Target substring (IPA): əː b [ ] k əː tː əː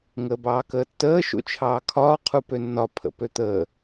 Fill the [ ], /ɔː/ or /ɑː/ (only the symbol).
ɑː